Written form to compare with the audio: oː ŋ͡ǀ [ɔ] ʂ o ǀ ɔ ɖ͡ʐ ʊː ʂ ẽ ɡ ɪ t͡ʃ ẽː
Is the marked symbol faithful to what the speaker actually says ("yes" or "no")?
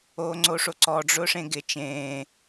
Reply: no